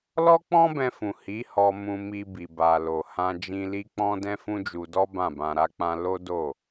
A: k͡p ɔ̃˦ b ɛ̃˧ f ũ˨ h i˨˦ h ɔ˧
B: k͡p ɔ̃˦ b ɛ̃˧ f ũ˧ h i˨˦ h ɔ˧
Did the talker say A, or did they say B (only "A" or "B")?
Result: A